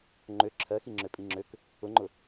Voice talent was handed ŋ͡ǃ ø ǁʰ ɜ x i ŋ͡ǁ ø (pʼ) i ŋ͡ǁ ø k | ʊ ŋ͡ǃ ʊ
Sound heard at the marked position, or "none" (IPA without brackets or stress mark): pʼ